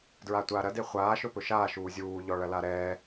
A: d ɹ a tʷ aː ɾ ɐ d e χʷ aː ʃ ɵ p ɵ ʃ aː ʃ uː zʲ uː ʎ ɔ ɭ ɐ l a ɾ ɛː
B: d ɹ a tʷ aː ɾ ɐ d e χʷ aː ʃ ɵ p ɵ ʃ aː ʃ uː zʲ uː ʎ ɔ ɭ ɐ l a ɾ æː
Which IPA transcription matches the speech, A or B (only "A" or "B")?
A